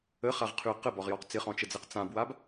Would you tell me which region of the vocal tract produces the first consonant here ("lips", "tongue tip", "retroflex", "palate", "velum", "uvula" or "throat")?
uvula